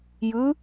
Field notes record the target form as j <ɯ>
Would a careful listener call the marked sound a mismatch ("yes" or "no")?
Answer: no